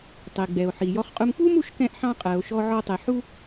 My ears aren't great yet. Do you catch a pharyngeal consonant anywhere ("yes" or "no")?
yes